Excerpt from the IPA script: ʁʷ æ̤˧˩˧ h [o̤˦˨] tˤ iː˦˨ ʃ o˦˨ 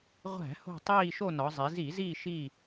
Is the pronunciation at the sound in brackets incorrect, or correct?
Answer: correct